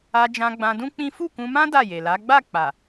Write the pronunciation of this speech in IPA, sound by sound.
a˧ d͡ʒ ã˧ ɡ͡b ã˧ d ũ˦ k͡p ĩ˦ f u˦˨ k ũ˧ m ã˦ d a˦˨ j e˨ l a˨˦ ɡ͡b a˦˨ k͡p a˨

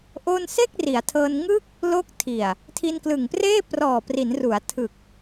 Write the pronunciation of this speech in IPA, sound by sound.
ʔ o˥˩ n s e˥˩ k̚ r i˩˦ a̯ tʰ ɤː˧ n ŋ ɯ˥˩ k̚ | l o˦˥ k̚ tʰ i˨˩ a̯ | tʰ i˧ n k l ɯ˨˩ ŋ p r eː˥˩ p r ɔː˨˩ p r i˩˦ n r u˩˦ a̯ tʰ ɯ˨˩ k̚

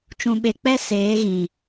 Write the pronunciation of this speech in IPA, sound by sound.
t͡ʃ ũ˨ ɓ e˨ k͡p ɛ˦ s eː˨˦ ɣ ĩ˨

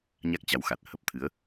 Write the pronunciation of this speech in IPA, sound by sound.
ɲ a˦˥ k̚ t͡ɕ a˨˦ w x a˨˩ t̚ h ə˦˥ p̚ t̪ʰ ɨ˨˦ ə̯

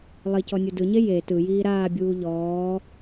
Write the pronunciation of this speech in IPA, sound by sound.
lˠ i c ɔ nʲ u d ɯ ɲ e j e t ɯ j iː ɾ aː bʲ uː ʎ ɔː

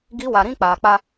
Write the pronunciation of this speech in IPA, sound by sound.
ɡ i˨˦ w a˨ ɾ ĩ˦ k͡p aː˨ k͡p a˦

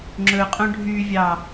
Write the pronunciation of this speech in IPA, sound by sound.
ŋ͡ǁ ɵ qʼ õ ɖʱ y vʲ ɑ

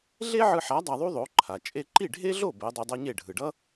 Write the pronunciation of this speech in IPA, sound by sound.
ɮ e˥ ʕ ɯ˧ ħ a˩˥ dˤ a˧ ðˤ u˥ ðˤ o˩˥ ǃʰ a˩ t͡ʃʼ e˧ ǃ i˥˩ ɖʱ e˥ ɮ o˥˩ b ɛ˩˥ dˤ i˧ dˤ ʌ˥ ɲ e˥˩ ɖʱ ɯ˩ ɖ ʌ˥

